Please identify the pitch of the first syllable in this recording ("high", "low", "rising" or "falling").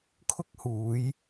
high